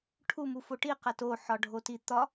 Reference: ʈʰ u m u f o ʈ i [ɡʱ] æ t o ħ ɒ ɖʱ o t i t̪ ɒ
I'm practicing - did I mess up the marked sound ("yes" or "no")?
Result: yes